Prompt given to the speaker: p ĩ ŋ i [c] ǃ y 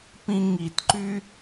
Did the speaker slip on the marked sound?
yes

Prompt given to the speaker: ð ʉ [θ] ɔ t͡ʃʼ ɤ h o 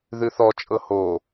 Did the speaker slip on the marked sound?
no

